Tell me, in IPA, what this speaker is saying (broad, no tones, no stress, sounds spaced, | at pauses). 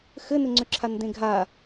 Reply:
x ɘ n ɘ ŋ͡ǀ ʏ ǁʰ a n d ẽ ɡʱ a